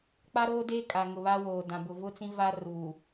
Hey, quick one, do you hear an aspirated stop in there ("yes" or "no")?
no